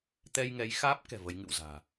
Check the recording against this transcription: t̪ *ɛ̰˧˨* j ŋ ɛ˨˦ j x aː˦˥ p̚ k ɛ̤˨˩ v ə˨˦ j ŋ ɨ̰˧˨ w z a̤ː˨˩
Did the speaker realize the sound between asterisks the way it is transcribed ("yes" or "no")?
no